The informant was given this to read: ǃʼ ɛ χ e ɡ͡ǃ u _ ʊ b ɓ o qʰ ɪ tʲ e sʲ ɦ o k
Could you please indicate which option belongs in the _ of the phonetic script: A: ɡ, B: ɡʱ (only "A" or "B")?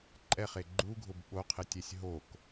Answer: B